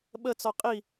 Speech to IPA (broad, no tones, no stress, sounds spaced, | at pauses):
ɓ ə t͡s ɔ qʼ i